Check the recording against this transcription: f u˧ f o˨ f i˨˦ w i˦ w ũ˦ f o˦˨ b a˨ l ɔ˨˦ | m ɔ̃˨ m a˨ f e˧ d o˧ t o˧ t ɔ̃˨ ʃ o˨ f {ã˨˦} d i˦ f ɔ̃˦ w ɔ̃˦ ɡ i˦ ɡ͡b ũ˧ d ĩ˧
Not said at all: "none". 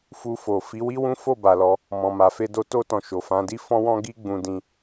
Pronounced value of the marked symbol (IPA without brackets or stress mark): ã˨˦